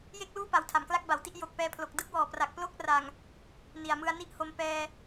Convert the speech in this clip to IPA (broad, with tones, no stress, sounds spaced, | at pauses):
j e˥˩ k̚ l uː˥˩ p a˨˩ w tʰ a˨˩ m k l a˥˩ k̚ b a˩˦ w t i˦˥ ʔ j o˨˩ k̚ p ɛː˧ pʰ l o˨˩ k̚ d ɯ˥˩ k̚ w ɔː˨˩ p r a˨˩ k̚ p l o˦˥ k̚ r a˨˩ ŋ | n i˨˩ a̯ m ɯ˧ a̯ n i˥˩ ʔ h o˧ m p ɛː˧